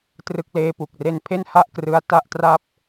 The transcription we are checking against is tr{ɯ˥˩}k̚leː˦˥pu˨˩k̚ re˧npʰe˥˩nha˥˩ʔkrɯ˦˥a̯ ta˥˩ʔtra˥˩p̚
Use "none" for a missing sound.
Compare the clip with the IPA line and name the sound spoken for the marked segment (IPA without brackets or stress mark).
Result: ɯ˦˥